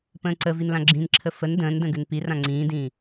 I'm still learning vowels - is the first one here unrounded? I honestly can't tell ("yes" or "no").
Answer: yes